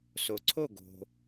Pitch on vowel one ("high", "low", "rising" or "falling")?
low